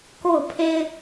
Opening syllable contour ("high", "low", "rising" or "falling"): falling